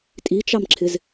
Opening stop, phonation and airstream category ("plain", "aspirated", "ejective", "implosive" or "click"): ejective